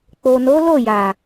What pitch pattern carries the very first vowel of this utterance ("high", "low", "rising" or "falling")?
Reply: low